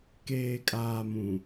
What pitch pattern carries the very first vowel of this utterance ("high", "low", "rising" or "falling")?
low